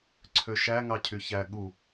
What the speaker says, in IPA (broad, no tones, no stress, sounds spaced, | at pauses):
ǀʰ ø ʃ æ ŋ ɑ cʰ y ç æ ɠ u